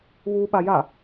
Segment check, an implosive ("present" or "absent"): present